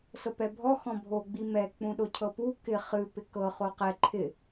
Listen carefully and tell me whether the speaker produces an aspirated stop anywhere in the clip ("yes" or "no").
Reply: yes